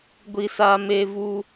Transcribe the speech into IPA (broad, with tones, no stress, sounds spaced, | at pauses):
ɡʷ i˦ s aː˦ m e˦ v u˦